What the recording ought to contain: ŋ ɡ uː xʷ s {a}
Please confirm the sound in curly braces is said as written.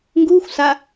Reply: yes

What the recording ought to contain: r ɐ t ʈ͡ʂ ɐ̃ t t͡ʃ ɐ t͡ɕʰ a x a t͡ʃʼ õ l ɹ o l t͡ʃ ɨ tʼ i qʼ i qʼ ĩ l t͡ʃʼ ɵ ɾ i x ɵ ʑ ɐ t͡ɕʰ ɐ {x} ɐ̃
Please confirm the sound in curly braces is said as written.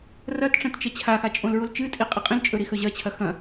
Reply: yes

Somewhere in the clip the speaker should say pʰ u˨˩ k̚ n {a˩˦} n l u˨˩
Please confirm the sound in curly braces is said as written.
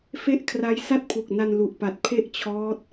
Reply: no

